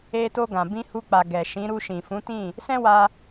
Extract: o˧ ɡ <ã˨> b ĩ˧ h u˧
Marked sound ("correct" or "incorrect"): correct